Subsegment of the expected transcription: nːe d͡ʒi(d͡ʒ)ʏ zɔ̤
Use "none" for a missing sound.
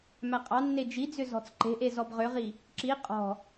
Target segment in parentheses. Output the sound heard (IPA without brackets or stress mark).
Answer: d͡z